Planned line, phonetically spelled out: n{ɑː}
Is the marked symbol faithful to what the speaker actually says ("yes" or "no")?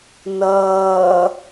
no